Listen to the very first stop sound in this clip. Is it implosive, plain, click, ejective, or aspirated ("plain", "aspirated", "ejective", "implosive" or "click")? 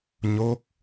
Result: plain